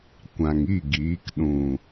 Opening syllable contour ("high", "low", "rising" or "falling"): low